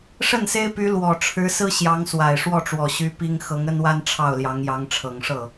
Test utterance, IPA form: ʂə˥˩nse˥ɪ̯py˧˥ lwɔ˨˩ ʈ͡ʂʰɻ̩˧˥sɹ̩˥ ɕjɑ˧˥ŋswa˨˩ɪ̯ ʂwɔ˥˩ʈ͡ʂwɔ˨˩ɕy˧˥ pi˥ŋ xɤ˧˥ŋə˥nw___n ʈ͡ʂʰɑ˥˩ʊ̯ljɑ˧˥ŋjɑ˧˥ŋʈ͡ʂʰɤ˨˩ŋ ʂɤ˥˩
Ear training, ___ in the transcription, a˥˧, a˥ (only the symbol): a˥